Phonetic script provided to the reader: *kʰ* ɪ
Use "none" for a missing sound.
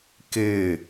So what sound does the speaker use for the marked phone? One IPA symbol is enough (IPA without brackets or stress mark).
k